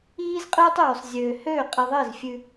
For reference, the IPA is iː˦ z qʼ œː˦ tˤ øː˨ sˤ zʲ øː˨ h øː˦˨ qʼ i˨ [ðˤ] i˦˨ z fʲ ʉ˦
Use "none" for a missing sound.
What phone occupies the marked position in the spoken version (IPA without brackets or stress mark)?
ðˤ